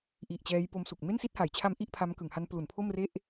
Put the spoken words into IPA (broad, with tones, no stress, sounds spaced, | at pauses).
ʔ i˨˩ ʔ t͡ɕ ɛː˦˥ j p o˦˥ m s u˨˩ k̚ m e˥˩ n s i˥˩ t̚ h a˩˦ j t͡ɕʰ a˦˥ m ʔ i˥˩ ʔ pʰ a˦˥ m k ɯ˩˦ ŋ h a˦˥ n p l u˩˦ n pʰ o˥˩ m r e˥˩ ʔ